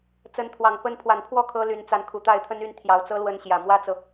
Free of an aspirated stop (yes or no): no